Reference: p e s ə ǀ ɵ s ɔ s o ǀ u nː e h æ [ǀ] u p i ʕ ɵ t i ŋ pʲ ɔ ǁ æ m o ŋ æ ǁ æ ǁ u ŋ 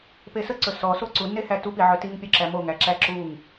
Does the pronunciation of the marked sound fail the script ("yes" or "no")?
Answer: yes